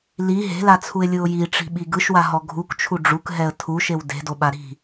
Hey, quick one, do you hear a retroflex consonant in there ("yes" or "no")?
yes